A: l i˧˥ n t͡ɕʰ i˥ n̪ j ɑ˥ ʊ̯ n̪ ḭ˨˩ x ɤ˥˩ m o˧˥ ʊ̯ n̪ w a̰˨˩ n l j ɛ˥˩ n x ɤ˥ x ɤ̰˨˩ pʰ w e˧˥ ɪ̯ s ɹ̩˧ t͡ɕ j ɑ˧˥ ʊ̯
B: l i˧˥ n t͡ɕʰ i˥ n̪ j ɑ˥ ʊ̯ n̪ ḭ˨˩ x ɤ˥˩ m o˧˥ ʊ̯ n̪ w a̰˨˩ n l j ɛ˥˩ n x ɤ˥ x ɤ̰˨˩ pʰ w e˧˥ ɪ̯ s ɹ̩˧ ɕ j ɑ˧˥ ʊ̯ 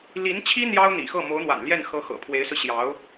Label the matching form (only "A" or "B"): B